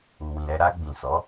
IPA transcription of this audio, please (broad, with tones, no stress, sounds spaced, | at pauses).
u˨ w ĩ˨ ɾ ɛ˧ ɾ a˧ ɡ͡b ĩ˨ s ɔ˨˦